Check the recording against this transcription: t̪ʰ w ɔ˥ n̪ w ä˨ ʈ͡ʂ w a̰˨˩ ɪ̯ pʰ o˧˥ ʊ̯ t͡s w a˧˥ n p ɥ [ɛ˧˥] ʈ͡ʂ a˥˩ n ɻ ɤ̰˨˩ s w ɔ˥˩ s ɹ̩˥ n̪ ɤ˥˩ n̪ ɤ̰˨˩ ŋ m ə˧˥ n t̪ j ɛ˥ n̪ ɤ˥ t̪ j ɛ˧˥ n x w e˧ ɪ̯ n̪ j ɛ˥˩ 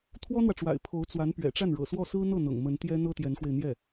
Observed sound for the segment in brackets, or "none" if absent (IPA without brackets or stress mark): ɛ̰˨˩